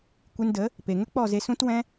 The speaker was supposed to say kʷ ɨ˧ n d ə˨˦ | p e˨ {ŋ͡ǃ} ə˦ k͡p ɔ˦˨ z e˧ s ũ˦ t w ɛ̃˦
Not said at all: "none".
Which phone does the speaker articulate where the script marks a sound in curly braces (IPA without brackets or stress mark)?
ŋ